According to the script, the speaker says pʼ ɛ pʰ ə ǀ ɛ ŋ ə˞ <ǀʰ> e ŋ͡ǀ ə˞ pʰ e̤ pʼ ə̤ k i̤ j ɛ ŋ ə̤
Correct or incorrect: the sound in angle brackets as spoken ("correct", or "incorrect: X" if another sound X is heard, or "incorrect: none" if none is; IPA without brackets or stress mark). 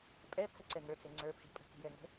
incorrect: tʰ